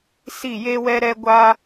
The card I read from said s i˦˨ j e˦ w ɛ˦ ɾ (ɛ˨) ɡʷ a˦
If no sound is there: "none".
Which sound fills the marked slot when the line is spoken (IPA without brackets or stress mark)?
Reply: ɛ˦